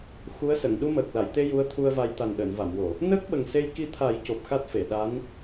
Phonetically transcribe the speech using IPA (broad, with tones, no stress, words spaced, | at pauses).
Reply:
xu˧˥ə̯sə˨˩˨ŋ ɗu˧məː˨˩k̚la˨˩˨jt̪e˧ ju˧˥ə̯t̪ʰu˧ə̯va˧j t̪a˨˩nɗəː˨˩˨nva˨˩˨mwo˨˩˨ | nəː˦˥k̚ɓə˨˩ŋse˧jki˧ t̪ʰa˨˩˦j co˨˩p̚xa˦˥t̚fe˨˩˨ ɗa˧˥n